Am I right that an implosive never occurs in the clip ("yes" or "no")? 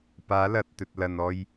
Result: yes